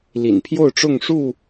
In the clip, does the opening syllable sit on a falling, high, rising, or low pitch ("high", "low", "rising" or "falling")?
low